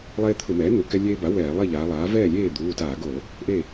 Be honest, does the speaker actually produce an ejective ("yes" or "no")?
no